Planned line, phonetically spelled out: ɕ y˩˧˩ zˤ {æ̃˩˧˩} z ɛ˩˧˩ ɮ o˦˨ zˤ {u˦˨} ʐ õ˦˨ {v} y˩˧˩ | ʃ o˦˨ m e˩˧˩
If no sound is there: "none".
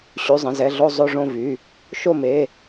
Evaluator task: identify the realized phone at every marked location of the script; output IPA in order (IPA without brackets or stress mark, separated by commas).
ə̃˩˧˩, o˦˨, v